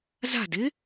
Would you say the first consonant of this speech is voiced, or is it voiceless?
voiced